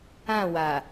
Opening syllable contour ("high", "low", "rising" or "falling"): falling